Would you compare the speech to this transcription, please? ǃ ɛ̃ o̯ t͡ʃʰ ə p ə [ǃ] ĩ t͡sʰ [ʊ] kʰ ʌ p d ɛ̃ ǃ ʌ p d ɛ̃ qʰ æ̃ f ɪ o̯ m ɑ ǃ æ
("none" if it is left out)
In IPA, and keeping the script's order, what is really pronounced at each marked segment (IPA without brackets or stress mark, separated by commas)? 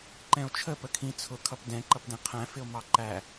kʰ, ʊ